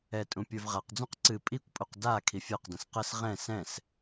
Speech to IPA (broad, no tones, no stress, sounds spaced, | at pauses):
ɛ tʼ ũ pʲ ə˞ v ʁ a q d͡z ũ q ǀ ɨ pʼ i kʷ pʼ u q d a kʰ i fʲ ə˞ q d ə̃ s q ə s ʁ ɛ̃ s ɛ̃ s